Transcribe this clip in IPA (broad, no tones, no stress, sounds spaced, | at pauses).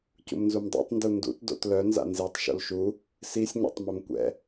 c ṵ m n z u m dˤ o̰ tˤ n d u n d ṵ t d o̰ t l œ n z a̰ n z i tˤ ʃ o̰ l ʃ u | s i sʲ ɲ a̰ tˤ m œ m kʷ ɛ̰